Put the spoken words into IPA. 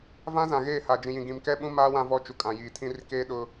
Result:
v ã˦ z ã˨ ɣ eː˦˨ h a˨ d͡ʒ ĩ˨ j ĩ˨ ɡ ĩ˨ m k ɛ˦ ɓ ũ˦ m aː˦ w ã˦ v ɔ˦ t͡ʃ u˨ kʼ ã˨ j iː˨ tʰ ĩ˦ r k eː˦ ɗ ʊ˦

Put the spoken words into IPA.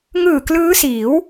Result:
ŋ ɯː˨˩ k l ɯː˦˥ s iː˩˦ w

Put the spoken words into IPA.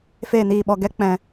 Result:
f eː˨ n iː˨ ɓ ɔ˨ ɡ ɛ˦ k͡p ɛ̃˧

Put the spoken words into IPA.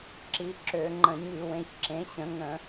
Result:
ǁ i˨˦ ǁ ø˧˩˧ ŋ͡ǃ ə̃˧˩˧ ɲ y˧˩˧ w ẽ˨˦ ç ǁ ẽ˨˦ ɕ ə̃˨˦ ŋ ə̃˧˩˧

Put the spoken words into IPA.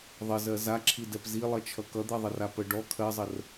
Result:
ðˤ ə z ɜ z a ǁʰ i d ɛ p z i lˠ ʌ t͡ʃʰ ʌ k ʌ d̪ ɜ ðˤ ə r a p ə ɖ ɔ kʰ ɜ zˤ ə r

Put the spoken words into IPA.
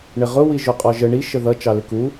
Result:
ɳ ɪ ʁ ʊ w i ʒ ʊ qʼ ɔ ʒ ə ɳ i ʃ ə ð ʌ t͡ʃ ɑ l ɪ k u

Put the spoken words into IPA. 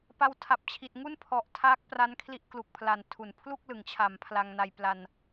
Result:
p a˧ w tʰ a˨˩ p̚ t͡ɕʰ i˨˩ t̚ ŋ u˥˩ n pʰ ɔ˨˩ ʔ tʰ aː˦˥ k̚ p r a˦˥ n kʰ l i˦˥ ʔ k l u˨˩ k̚ pʰ l a˨˩ n tʰ u˩˦ n pʰ l u˥˩ k̚ l ɯ˩˦ ŋ t͡ɕʰ a˩˦ m pʰ l a˧ ŋ n a˧ j p l a˧ n

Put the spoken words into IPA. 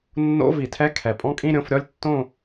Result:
nː o̰˧˥˧ v i˨˩˦ tʰ ɛ˧˥˧ kʰ ɛ˨˩ pʼ ɔ̃˥˧ kʼ ĩ˥˧ ɾʲ õ˥˧ f ɾʲ ɔ˥˧ lʲ tː õ˥˧

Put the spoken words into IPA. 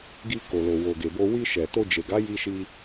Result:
ɡ i˧ k o˨ l o˨ w o˨ ɡ e˨ b o˧ w i˧ ʃ ɛ˨ t o˧ d͡ʒ e˨ ɡ a˨˦ j i˧ ʃ i˧

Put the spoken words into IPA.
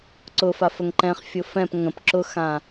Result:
ǀ ʊ f a f ə ŋ ǃ ɛ̃ χ fʲ ʊ f ɛ̃ p ŋ ə̃ p ǁ ʊ x ã

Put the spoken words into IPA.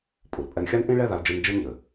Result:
pʼ u˩ l pʼ ɛ˧ n xʲ a˥ n ʔ ĩ˥ ɭ ɛ˥ ð a˧ l d͡ʒ ɨ˧ n d͡ʒ ɨ˥ n ʎ ɘ˩

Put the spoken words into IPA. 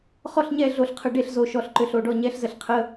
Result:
χ ɔ˥˨ ɬ ɲ ɛ˥˨ ɮ o˧˩ ɬ qʰ ə˧˩ ɖ e˥˨ ɬ z o˧˩ ʃ ɔ˧˩ ɬ ǃ ʏ˧˩ ɬ o˧˩ ɖ ɔ˥˨ ɲ ɛ˧˥˧ ɬ z ə˧˩ ɬ qʰ ə˧˥˧

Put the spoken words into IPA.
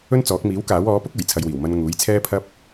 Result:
ɵ˥ n t͡s ɔː˨˥ k̚ m iː˨˥ w k aː˨˥ w ɔː˨˥ p ʊ˥ k̚ uː˨˩ j t͡sʰ ɐ˧ j w iː˨˩ w m ɐ˧ n ŋ uː˨˥ j t͡sʰ ɛː˥ pʰ ɐ˥ p̚

